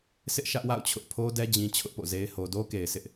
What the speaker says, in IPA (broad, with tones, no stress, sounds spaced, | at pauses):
s ɪ˦ ʔ ʃ ä˦ ʔ w a̰˦˨ ʊ̯ t͡ɕʰ ʊ˦ ʔ pʰ o˦ d ɛ˦ d͡ʑ ĩ˦ t͡ɕʰ ʊ˦ ʔ p o̰˦˨ z e˦ ɪ̯ h o˨ d o˦ k e˨ ɪ̯ sʰ ɪ˦ ʔ